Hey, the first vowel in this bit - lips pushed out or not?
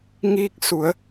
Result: no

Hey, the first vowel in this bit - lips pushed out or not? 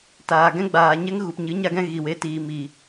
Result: no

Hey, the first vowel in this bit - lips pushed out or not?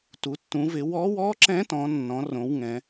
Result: yes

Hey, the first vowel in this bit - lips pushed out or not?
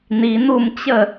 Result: no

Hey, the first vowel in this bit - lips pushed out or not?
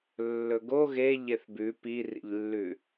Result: yes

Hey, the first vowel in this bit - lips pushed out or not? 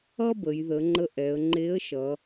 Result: no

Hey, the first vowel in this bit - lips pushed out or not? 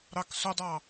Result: no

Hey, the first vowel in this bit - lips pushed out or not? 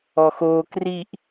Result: yes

